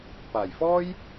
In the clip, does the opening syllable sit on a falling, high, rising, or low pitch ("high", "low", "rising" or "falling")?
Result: low